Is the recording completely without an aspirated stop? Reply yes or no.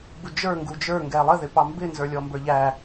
yes